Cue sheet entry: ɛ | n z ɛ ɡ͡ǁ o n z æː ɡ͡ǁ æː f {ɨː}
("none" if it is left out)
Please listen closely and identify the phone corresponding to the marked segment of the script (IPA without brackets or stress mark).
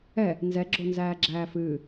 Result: ɨː